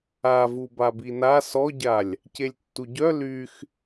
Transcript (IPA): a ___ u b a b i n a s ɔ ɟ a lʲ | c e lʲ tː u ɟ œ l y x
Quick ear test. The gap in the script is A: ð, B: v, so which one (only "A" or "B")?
B